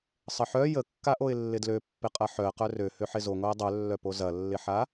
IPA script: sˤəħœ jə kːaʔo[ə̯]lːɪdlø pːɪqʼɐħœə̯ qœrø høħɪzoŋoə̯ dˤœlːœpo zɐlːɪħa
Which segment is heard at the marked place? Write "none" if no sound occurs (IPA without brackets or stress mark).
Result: ɪ̯